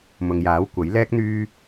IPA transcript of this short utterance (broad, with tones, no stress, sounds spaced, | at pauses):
m ʊ˨ ŋ j aː˨˥ w kʷ ɐ˨˥ j l ɛː˥ k̚ n̪ yː˥